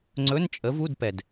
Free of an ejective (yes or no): no